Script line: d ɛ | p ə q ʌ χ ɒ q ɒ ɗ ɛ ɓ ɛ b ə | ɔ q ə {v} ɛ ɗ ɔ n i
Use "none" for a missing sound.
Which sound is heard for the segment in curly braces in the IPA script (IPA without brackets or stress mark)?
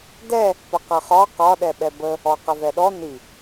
v